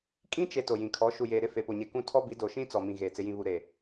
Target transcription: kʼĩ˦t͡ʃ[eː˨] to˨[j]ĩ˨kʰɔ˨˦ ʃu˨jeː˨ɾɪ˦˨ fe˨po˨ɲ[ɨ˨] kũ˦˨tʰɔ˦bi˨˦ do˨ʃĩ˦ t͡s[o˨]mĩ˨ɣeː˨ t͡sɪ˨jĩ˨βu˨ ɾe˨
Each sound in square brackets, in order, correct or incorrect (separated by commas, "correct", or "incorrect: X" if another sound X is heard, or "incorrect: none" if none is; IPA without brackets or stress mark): incorrect: e˨, correct, incorrect: e˨, incorrect: ɔ˨